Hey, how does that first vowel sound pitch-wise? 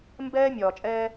high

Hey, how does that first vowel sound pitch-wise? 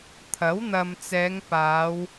rising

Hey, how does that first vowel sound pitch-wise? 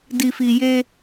low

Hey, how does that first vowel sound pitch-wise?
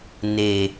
low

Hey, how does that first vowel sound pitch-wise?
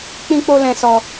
high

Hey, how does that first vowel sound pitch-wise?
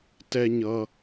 low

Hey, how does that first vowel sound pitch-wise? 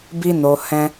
high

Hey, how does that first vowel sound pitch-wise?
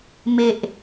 low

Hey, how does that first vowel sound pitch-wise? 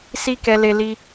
high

